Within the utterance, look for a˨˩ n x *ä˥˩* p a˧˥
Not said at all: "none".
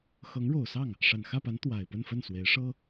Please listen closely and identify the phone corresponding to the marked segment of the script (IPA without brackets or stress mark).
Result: ä˥˩